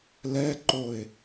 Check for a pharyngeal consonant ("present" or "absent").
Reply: absent